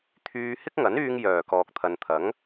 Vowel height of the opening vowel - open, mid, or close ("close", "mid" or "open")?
close